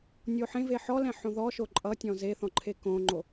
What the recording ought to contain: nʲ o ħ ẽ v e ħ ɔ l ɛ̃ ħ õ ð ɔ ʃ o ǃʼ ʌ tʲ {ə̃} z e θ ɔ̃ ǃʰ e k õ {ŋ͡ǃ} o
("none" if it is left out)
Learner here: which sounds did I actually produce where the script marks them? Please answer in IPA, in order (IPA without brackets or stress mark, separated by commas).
ɔ̃, ŋ͡ǃ